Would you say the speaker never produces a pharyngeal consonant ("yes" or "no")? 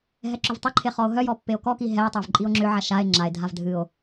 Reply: no